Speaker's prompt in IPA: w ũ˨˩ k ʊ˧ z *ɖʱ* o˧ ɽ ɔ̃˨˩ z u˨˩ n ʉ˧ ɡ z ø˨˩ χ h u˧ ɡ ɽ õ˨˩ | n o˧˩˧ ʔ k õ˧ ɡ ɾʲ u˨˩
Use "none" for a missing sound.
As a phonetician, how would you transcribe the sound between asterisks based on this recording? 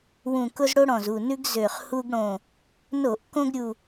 ɽ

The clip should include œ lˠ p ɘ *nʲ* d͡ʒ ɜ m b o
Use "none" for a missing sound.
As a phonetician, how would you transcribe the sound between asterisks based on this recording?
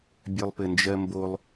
n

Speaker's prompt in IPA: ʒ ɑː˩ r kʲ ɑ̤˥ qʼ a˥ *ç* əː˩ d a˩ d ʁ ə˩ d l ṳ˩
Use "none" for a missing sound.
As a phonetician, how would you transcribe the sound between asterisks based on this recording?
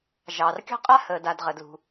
h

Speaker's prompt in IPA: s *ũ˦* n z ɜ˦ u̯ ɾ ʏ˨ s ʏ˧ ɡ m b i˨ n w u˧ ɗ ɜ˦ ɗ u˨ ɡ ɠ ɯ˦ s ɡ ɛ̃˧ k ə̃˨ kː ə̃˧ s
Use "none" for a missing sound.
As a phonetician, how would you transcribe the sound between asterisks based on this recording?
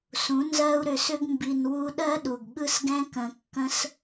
ũ˨˦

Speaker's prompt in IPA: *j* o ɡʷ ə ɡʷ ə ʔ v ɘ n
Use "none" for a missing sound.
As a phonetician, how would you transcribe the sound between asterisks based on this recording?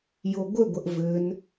j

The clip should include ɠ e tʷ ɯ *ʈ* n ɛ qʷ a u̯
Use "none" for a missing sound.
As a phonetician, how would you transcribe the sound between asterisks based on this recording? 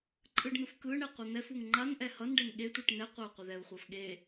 ʈ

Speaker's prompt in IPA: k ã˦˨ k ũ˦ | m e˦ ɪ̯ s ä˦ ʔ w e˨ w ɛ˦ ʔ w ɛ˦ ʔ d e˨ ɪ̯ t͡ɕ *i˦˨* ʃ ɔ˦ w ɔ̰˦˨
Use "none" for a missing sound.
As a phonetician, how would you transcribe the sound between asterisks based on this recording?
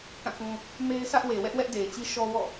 i˦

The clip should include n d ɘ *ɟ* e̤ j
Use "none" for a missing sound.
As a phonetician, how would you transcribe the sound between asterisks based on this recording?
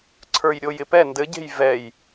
ɟ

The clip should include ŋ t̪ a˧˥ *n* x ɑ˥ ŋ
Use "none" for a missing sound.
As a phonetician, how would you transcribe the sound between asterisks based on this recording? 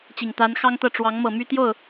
n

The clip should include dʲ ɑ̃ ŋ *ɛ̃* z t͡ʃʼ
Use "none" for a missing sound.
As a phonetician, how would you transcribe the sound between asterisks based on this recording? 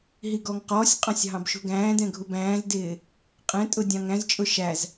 æ̃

